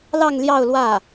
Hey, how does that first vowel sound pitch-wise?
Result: falling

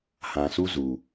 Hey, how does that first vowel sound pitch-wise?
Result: low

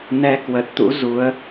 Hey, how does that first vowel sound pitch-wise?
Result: rising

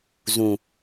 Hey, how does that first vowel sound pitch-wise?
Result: low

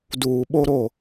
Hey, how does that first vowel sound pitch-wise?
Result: low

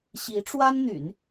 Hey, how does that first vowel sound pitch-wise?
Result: rising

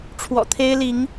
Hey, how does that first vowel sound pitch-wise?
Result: low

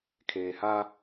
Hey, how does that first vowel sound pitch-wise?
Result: low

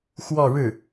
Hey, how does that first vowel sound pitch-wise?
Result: falling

